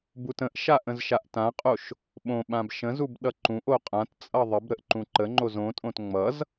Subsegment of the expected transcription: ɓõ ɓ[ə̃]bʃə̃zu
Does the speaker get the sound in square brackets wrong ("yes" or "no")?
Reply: yes